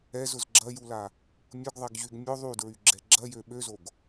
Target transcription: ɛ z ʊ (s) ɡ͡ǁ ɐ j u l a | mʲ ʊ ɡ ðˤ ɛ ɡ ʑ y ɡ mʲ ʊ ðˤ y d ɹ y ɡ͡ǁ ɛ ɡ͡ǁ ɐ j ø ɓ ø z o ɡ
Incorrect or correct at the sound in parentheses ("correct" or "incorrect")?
incorrect